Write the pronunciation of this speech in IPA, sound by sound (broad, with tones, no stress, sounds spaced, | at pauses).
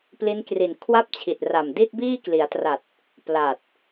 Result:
p l i˦˥ n k r i˨˩ n kʰ w a˥˩ p̚ t͡ɕʰ i˨˩ t̚ r a˨˩ m d i˥˩ t̚ b iː˥˩ k l i˩˦ a̯ t r a˨˩ t̚ | p l a˨˩ t̚